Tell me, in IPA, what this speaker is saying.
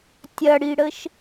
tʲ ɐ ɽ i ɽ ə ʃ

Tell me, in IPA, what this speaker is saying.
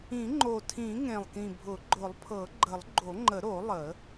ĩ˨˩˦ ŋ͡ǃ o˨˩ tʰ ĩ˨˩˦ ŋ ẽ˨˩ lˠ k ĩ˨˩ bʱ ʊ˨˩˦ ɡ͡ǃ ʊ˨˩˦ lˠ pʰ ɤ˨˩˦ ɡ͡ǃ ə˨˩˦ lˠ ɡ͡ǃ o˨˩˦ ŋ͡ǃ ə˨˩˦ ɾ o˨˩˦ lˠ ə˨˩˦

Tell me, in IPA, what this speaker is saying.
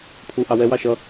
pʰ u ʔ ɑ w ɛ w ɑ ʃ ʌ

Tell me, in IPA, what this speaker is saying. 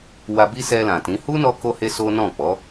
w a˧ b i˦ s ɛ˧ l ã˨ t ĩ˨˦ h u˦ n ɔ˧ k o˧ h e˦ s o˦ n ɔ̃˦˨ k͡p ɔ˨˦

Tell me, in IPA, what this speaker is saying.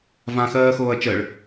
v ã x ɜː x oː ɐ̯ t͡ʃ ɜ ɭ

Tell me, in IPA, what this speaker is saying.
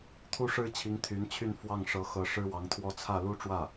t̪ʰ u˥ ʂ ɻ̩˥ t͡ɕʰ i˧˥ ŋ t̪ʰ y˧˥ n t͡ɕʰ y˥˧ n f w ɑ˥˩ ŋ ʂ ɤ˧˥ x ɤ˧˥ ʂ ɻ̩˥ w ɑ˧˥ ŋ t̪ʰ w ɔ˥ t͡sʰ ä˥˩ l u˥ ʈ͡ʂ w ä˥˩

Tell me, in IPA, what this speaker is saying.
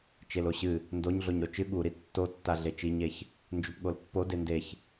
t͡ʃ e l o ɕ ɨ | n d o ɲ ɮ o ɲ ɾ o t͡ʃ ɨ ɠ u ɾ i tː o tː a ɮ e t͡ʃ i ɲ e ç | n d͡ʒ u p ɠ o l pː o d e n d e ç

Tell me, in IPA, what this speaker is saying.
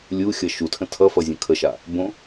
lʲ u xʲ ʌ ʃ u tʰ ə̃ tʰ ʌ f ʌ zʲ ə̃ kʰ ə ʃ a | b õ

